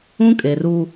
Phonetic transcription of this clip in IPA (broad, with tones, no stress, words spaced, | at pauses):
ũ˦kʼe˨ru˦